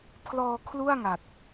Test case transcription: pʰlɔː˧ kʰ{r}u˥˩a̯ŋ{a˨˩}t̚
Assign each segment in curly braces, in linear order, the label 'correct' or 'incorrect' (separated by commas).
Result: incorrect, correct